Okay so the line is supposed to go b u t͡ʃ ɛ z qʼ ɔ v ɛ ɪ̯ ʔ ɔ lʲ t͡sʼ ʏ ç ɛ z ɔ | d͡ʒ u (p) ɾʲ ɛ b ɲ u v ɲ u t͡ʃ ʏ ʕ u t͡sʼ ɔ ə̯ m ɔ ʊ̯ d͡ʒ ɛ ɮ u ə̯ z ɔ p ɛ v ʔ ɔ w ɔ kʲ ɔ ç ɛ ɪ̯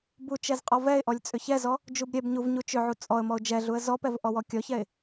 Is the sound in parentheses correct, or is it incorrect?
incorrect